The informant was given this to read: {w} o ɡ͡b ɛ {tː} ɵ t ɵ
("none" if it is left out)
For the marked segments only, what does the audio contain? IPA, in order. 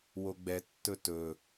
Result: w, tː

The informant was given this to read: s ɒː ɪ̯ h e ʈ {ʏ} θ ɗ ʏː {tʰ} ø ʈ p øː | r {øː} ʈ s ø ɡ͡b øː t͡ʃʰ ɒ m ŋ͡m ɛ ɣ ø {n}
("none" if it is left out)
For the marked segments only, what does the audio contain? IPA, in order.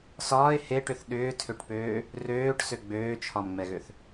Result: ʏ, tʰ, øː, θ

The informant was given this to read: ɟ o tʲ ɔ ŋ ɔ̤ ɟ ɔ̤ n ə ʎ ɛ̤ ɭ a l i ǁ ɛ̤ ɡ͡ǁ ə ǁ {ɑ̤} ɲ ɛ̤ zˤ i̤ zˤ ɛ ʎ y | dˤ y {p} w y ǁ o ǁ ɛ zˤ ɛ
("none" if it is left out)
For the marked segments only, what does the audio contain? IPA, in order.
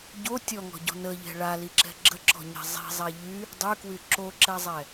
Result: ɔ̤, k

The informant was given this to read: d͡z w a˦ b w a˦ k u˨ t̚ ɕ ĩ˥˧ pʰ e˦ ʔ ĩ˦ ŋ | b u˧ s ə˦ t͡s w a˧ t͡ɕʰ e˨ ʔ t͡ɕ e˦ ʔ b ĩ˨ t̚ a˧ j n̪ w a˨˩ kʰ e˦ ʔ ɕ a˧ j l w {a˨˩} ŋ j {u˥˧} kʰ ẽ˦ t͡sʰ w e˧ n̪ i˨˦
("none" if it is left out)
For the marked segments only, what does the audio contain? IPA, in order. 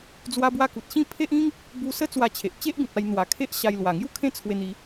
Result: a˨˩, u˥˧

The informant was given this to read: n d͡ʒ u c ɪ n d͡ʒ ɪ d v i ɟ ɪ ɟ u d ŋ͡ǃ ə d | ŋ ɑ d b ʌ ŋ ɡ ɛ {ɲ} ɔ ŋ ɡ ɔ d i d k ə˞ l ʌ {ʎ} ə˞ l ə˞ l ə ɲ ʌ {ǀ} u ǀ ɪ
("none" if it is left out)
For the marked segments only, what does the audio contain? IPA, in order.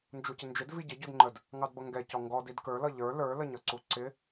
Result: c, ʎ, ǀ

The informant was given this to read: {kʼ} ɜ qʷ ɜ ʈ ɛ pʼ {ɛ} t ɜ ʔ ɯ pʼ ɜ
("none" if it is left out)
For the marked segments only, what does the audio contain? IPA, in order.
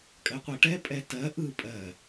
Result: kʼ, ɛ

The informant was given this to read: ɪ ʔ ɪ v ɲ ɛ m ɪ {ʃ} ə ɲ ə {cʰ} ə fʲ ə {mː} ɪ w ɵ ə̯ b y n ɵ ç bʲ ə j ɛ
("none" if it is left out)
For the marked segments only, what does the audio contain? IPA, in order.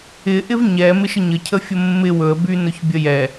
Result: ʃ, cʰ, mː

